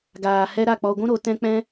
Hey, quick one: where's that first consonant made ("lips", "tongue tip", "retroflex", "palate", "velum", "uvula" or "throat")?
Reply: velum